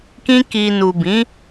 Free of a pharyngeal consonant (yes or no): yes